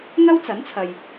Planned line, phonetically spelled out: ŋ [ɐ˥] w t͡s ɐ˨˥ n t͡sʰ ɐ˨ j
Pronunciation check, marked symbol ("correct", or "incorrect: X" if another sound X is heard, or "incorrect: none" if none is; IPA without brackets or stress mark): correct